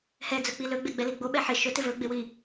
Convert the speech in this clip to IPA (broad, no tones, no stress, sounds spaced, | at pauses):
h ɛ d͡z ɵ k͡p i l ɵ ɡ͡b e ɡ͡b ɛ l i ɡ͡b o ɓ ɛ ħ ɪ ʃ ɵ t ɪ v ɵ ɡ͡b e w i